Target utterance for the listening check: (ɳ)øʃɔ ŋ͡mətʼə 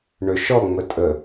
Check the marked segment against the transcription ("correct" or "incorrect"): correct